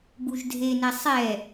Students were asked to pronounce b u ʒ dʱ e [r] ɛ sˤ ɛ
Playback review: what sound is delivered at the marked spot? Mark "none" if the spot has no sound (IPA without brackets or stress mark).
n